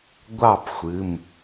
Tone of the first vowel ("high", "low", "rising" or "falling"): falling